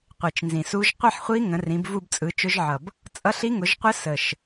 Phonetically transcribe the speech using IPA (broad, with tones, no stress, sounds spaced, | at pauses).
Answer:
qʷ i˨˩ t͡ʃ n z ĩ˨˩ s u˦˥ ʒ qʷ i˥˧ ħ χʷ i˦˥ ŋ ə̃˨˦ r ĩ˨˦ b v u˥˧ b t͡sʼ ɯ˨˦ t͡ʃ ʊ˦˥ ʒ ʕ ʌ˨˩ b | t͡sʼ ʌ˦˥ ɬ i˦˥ ŋ ʊ˨˦ ʒ qʷ ə˦˥ s ə˨˩ ʃ